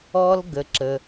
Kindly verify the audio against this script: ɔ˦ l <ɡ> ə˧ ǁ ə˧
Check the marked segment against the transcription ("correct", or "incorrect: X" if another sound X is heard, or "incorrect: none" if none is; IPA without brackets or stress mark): correct